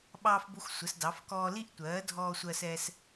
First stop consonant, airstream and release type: implosive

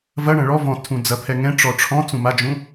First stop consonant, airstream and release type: aspirated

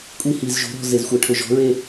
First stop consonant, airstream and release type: ejective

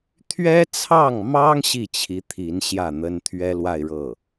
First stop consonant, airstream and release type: aspirated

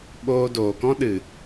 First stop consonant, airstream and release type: implosive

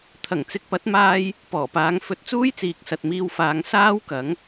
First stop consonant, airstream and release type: aspirated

